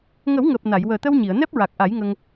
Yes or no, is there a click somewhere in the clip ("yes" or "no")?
no